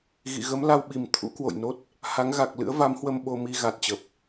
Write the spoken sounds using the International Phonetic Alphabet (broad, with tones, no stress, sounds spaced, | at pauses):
ɣ ḭ˧˨ ɣ ə˨˦ m l a˧ w ɓ i˨˩ m t̪ʰ ṵ˧˥ k w o̰˧˨ j n o˦˥ t̚ | h a˨˦ ŋ ɣ a˨˩ k̚ l ɨ̰˧˥ ə̯ v a˨˦ m h w ə˧ m ɓ o˧ m i˧ ɣ a˨˩ t̚ t͡ɕ ə˨˩ p̚